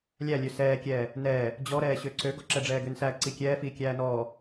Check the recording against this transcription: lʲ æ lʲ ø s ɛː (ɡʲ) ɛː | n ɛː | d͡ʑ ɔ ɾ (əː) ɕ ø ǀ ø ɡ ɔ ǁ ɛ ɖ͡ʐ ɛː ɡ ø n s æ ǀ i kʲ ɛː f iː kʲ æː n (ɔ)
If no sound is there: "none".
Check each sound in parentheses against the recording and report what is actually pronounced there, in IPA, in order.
kʲ, ɛː, ɔː

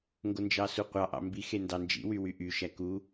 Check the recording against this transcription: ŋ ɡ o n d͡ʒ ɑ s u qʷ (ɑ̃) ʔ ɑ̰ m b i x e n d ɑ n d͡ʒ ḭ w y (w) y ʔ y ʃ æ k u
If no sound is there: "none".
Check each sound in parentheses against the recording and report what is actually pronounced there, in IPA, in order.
ɑ, w

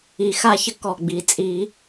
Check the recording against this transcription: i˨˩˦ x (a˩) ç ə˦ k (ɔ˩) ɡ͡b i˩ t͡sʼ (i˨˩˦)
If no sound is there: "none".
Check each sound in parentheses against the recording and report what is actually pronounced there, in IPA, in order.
a˦, ɔ˩, i˨˩˦

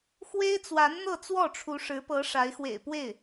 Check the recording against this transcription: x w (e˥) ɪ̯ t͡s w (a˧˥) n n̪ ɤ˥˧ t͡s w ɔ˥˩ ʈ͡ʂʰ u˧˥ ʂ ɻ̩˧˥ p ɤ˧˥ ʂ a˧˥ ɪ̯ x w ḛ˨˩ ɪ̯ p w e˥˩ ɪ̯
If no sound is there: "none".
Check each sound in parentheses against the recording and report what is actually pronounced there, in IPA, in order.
e˥, a˧˥

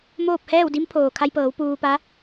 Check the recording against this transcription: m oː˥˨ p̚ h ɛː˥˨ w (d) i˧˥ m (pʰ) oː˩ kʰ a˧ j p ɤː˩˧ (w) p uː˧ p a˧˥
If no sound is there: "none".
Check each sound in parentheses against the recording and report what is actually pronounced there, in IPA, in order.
d, pʰ, w

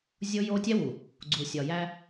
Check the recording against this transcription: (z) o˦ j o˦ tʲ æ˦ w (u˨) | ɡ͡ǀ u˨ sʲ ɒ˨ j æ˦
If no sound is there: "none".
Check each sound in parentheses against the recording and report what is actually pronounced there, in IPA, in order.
zʲ, u˨

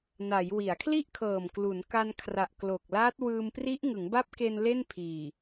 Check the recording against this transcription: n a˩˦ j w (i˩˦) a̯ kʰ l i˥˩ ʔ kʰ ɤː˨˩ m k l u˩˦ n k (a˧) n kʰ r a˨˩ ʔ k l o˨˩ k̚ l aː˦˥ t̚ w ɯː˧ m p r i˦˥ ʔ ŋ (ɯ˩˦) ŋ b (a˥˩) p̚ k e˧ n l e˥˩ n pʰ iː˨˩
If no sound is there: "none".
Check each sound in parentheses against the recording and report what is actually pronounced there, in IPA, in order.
i˩˦, a˧, ɯ˩˦, a˦˥

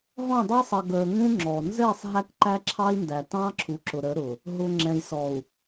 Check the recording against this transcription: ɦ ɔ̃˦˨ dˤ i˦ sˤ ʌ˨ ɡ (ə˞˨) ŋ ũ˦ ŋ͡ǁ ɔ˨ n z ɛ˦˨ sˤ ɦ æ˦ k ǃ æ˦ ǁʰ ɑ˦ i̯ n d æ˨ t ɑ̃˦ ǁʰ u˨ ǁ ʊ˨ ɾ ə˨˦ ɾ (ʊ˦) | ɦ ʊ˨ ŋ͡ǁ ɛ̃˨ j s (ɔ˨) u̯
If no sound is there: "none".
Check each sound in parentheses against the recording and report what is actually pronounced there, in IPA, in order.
ə˞˨, ʊ˨, ɔ˨

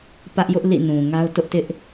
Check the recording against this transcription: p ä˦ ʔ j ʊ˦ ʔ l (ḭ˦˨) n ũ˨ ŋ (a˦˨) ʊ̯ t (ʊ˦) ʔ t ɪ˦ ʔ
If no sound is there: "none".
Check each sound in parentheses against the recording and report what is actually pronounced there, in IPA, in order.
ḭ˦˨, a˦, ʊ˦

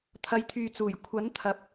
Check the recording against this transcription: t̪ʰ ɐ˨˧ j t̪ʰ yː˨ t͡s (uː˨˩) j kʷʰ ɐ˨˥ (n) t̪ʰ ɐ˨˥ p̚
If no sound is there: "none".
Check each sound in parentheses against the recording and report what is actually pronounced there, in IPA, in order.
uː˨˩, n

